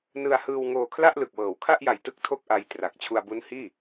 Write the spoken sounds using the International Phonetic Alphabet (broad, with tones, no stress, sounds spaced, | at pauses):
n ɯ˧ a̯ h ɯː˧ w ŋ oː˧ kʰ l a˥˩ ʔ l ɯ˨˩ k̚ w ɤː˩˦ w kʰ a˥˩ ʔ j a˨˩ j t ɯ˦˥ k̚ tʰ o˥˩ k̚ ʔ a˧ j t r a˨˩ k̚ t͡ɕʰ u˧ a̯ b u˦˥ n h iː˥˩